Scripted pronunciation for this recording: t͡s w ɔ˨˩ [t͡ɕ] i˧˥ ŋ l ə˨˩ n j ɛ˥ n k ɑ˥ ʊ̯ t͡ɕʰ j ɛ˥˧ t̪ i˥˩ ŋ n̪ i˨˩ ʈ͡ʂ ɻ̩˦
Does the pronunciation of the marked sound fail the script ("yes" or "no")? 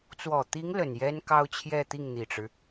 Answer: yes